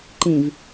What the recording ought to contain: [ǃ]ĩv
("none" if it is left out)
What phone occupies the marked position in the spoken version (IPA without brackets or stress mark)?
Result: ǃ